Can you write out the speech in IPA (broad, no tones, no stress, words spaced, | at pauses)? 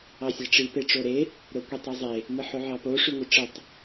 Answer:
ɑsʲæʈ͡ʂi peʈ͡ʂoɾe | ɾokʷetˤezˤe | mɯħoʕɑpo ʂyŋʷiʈ͡ʂɯtˤ